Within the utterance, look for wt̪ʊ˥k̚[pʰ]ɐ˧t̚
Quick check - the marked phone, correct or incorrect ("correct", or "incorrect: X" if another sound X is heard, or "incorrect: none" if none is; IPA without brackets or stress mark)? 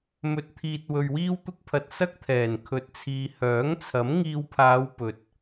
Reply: correct